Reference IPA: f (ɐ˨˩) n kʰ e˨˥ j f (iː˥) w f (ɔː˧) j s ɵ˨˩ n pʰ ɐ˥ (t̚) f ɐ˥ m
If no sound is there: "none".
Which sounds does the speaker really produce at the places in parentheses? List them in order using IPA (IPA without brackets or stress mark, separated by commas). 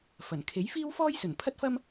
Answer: ɐ˨˩, iː˥, ɔː˥, t̚